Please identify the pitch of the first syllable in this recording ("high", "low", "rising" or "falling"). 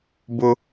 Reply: high